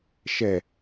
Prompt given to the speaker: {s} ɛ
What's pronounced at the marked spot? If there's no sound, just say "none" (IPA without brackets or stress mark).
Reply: ʃ